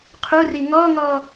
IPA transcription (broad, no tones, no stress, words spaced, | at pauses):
qʰuri ŋɔŋɔ